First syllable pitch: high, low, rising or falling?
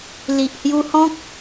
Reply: low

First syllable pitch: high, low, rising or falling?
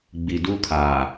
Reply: low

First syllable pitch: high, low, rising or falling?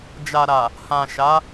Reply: low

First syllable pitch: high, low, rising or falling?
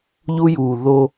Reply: high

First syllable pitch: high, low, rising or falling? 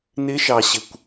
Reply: rising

